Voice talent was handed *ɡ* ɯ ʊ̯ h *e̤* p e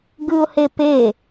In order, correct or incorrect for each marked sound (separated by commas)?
correct, incorrect